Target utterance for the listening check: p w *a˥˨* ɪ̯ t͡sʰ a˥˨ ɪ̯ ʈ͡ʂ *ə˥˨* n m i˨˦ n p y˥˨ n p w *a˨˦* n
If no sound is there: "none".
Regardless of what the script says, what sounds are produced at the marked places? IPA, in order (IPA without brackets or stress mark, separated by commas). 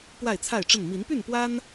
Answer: a˥˨, ə˥˨, a˦